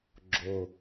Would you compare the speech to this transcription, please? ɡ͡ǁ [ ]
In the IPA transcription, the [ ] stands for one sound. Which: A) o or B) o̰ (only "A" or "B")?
A